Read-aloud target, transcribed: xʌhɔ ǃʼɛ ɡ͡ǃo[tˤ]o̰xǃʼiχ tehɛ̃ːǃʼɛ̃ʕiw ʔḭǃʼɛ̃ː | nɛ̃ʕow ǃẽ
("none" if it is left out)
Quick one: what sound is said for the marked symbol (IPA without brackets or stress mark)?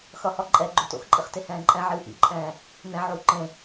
t